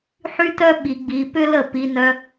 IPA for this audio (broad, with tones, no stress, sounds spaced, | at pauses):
ħ y˦ t œ˦ ɓ i˧ ɡ͡b i˧ p ʏ˦ l ə˦˨ p i˧ n œ˧